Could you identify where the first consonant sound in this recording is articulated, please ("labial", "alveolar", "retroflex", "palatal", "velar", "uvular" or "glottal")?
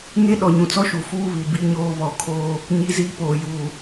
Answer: velar